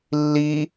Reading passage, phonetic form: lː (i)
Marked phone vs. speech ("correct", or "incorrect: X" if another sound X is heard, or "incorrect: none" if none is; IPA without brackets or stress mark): correct